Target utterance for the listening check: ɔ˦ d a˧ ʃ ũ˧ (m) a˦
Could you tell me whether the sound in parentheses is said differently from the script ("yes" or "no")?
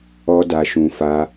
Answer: yes